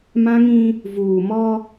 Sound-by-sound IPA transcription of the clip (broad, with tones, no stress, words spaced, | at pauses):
mã˦ŋĩ˦ | vuː˨mɔ˦